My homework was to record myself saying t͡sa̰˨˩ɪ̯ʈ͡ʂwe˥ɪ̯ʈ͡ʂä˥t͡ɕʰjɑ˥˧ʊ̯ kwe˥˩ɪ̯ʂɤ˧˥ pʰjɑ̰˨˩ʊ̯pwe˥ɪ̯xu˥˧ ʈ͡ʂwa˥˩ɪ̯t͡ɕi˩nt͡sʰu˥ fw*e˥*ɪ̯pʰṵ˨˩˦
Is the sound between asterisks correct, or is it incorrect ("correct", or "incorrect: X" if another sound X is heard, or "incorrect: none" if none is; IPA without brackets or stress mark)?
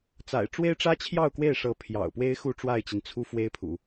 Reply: correct